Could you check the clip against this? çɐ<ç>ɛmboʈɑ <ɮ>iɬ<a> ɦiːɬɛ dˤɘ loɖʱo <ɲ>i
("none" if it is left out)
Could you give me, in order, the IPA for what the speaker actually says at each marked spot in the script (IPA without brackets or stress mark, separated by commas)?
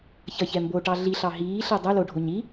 ç, ɮ, ɑ, ɲ